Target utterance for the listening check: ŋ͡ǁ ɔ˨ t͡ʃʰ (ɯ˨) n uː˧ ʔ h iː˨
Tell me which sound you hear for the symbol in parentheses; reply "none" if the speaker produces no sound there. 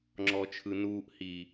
ɯ˨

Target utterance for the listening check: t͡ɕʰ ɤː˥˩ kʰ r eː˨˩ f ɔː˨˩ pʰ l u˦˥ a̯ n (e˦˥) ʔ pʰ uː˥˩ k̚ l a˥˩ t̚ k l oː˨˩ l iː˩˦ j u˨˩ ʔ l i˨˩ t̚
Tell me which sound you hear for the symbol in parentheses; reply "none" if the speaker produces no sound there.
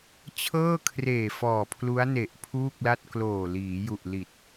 e˨˩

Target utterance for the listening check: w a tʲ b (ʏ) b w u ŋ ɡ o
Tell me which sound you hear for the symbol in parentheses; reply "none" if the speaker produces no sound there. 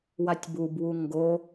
u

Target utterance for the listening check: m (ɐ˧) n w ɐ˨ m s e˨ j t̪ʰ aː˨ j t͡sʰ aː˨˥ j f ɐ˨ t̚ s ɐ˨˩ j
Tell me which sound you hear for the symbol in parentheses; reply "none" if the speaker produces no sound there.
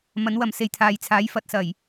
ɐ˨˥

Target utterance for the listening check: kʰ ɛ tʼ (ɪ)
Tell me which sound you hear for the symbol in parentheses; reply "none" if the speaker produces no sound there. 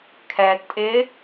ɪ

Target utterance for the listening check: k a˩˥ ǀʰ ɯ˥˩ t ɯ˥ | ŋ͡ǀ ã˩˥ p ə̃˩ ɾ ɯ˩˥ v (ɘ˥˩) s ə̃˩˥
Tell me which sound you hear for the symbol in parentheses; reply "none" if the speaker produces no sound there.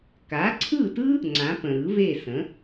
e˥˩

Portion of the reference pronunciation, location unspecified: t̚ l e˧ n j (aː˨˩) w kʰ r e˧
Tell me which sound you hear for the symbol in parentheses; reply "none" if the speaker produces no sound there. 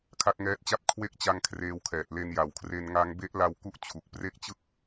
a˨˩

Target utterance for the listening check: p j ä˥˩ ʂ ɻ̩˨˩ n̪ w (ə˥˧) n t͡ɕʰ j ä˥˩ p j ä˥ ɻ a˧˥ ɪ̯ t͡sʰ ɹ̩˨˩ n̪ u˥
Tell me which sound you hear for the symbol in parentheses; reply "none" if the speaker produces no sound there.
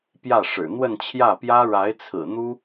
ə˥˧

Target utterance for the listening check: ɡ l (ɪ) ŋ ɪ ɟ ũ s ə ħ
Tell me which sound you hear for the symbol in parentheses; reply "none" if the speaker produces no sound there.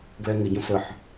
ɛ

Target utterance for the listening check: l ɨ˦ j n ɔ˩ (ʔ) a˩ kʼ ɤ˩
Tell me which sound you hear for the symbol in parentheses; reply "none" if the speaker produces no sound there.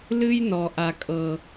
ʔ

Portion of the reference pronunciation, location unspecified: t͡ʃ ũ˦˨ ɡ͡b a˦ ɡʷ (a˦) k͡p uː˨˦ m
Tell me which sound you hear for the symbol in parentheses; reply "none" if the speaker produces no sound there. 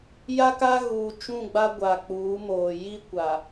a˨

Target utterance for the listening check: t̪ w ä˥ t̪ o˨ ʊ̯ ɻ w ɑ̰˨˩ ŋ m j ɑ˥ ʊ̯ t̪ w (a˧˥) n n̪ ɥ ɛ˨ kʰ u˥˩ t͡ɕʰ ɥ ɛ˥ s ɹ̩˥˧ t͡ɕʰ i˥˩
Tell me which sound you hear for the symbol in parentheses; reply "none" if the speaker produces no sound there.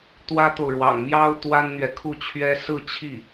a˥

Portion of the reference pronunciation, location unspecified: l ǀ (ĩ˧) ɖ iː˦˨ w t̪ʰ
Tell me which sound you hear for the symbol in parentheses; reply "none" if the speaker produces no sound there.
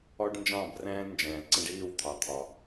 ĩ˧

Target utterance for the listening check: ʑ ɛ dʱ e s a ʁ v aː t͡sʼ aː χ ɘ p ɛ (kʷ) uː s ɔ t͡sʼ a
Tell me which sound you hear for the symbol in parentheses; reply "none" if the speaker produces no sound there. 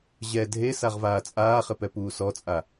p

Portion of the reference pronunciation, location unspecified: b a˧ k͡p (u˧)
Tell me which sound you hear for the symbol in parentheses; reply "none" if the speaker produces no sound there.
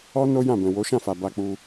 u˧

